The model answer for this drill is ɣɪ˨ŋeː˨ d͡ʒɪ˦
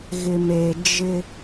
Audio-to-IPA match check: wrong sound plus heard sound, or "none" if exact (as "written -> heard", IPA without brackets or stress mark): ŋ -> m